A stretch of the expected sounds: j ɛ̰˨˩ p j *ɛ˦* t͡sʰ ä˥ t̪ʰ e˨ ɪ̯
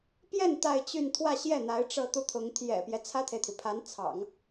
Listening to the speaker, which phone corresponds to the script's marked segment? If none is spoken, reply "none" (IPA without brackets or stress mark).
ɛ˦